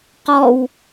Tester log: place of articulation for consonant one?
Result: uvular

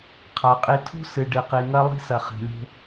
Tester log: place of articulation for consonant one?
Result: uvular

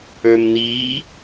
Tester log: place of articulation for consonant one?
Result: labial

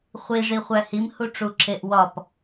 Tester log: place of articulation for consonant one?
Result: uvular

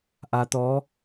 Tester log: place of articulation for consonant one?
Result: glottal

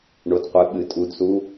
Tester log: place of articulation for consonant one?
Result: retroflex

